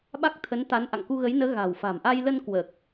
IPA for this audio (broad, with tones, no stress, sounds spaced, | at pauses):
ɓ a˦˥ k̚ t̪ʰ ə˨˦ n t̪ a˨˦ n ʔ a̰˧˨ ŋ k u˧ ɣ ə˨˦ j n əː˨˦ ɣ a̤˨˩ w f a̤˨˩ m ʔ a˧ j l ə˧ n k w əː˨˩ k̚